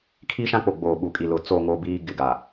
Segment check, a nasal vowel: present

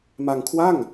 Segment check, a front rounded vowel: absent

